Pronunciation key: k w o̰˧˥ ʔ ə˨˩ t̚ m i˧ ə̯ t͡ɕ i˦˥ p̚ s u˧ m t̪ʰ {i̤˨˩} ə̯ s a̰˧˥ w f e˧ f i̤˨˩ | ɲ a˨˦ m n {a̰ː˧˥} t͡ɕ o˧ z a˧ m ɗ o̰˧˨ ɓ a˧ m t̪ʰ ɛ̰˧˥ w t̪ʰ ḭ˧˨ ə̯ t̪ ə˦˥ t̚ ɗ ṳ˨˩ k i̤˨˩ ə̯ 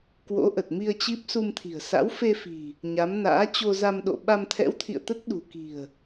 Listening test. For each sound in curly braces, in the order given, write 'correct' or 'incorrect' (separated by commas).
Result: correct, correct